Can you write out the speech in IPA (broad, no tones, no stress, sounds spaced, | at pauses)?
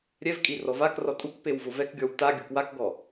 ɾʲ ɛ v kʼ i r ɔ v a k r ɔ tʼ u k p e w v ʊ v ɛ k ɡʲ ɔ w t a ɡʲ ʊ k w a k ɡ ɔ